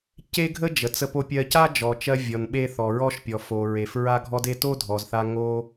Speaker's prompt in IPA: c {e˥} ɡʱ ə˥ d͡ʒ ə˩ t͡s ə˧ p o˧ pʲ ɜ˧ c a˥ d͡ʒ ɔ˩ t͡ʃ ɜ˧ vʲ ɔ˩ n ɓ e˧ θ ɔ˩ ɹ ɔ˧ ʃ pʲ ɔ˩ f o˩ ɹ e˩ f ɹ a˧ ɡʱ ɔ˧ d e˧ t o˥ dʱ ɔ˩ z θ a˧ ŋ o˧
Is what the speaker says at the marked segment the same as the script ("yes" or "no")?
yes